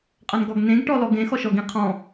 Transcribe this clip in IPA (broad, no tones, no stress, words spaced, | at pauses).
qʼɤnɡɔɡnẽɡ ʈɔlɔɡẽ xɔʃɔɡĩ qʰɔ̃